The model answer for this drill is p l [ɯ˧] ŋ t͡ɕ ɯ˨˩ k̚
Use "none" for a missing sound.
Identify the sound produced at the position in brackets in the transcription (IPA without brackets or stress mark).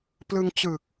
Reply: ɯ˧